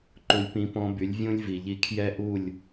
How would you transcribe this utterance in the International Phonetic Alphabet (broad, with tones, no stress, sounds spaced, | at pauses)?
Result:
ǃ u˦ lʲ p ĩ˦ p ɔ̃˦ b y˨˦ lʲ vʲ ũ˦ lʲ v i˨ ʎ i˧ kʰ j ɛ˦ ʔ u˦˨ lʲ